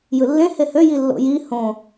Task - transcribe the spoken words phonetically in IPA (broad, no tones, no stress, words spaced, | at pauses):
jɯlːẽ hehø jilːo̰ji hõ